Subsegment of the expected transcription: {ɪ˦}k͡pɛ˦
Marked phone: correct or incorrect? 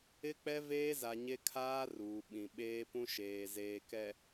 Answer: correct